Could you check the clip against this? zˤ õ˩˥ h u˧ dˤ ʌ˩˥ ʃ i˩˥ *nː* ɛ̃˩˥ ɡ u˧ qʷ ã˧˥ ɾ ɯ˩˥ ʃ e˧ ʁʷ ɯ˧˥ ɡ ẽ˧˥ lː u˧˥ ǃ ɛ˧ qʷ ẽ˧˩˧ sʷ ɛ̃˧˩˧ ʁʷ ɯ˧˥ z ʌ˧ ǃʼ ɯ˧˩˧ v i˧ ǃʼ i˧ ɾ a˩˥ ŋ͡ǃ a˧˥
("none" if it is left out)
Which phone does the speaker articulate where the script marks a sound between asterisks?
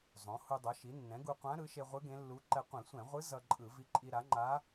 nː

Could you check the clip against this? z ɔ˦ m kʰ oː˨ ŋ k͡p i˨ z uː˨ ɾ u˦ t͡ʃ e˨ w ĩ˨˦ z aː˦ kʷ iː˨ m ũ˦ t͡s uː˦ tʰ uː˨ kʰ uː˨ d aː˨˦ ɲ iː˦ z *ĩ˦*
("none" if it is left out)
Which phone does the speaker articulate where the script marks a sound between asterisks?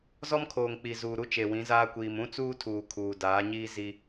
i˦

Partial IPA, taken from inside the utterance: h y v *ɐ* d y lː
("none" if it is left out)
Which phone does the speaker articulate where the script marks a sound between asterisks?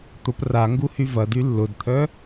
ɐ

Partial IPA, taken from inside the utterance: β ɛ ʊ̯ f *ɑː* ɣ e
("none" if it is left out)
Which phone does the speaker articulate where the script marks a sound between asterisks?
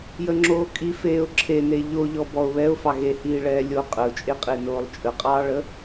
ɑ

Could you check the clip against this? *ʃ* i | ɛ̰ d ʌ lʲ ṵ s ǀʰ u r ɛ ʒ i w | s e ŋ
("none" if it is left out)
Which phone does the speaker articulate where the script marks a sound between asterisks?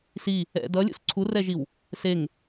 s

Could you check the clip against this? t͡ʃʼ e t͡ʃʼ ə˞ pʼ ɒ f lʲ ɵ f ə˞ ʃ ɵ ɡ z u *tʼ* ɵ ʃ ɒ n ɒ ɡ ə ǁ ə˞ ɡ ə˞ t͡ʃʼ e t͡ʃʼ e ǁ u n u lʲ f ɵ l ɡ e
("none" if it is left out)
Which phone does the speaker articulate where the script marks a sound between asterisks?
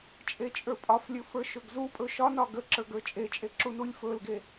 pʼ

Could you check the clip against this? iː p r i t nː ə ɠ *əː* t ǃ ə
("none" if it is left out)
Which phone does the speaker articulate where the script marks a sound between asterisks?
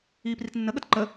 ə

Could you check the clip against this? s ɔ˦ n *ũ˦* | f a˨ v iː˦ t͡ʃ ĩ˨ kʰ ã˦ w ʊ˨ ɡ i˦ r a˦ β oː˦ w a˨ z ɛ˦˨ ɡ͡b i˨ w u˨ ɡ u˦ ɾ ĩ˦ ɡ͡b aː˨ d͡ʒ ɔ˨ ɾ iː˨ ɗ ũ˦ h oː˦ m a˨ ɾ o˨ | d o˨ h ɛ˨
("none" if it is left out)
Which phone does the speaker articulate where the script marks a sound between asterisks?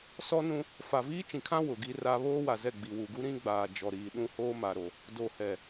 ũ˦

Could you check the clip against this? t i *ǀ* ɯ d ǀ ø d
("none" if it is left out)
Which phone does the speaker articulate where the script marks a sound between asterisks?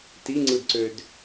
ŋ͡ǀ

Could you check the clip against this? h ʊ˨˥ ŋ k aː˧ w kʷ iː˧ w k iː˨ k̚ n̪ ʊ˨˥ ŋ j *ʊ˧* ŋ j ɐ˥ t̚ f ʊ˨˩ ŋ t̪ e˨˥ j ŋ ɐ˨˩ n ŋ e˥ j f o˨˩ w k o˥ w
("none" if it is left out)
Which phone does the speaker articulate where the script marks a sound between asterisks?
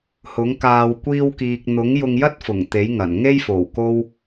ʊ˧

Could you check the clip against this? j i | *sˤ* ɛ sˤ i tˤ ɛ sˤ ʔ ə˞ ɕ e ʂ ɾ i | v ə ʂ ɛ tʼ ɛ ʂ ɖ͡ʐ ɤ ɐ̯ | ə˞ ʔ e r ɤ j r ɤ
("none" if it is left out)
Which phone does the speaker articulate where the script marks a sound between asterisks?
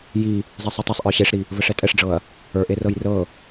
zˤ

